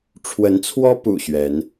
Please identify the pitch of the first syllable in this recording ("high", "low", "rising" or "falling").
rising